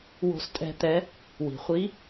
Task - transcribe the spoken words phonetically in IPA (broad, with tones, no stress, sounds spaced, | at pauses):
w o̤˧ s tʼ ɛ̤˧ t̪ ɛ˧˥ | w i̤˩ χʷ i˧˥